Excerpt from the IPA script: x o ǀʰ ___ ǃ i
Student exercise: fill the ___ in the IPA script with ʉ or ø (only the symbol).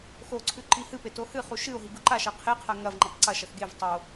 ʉ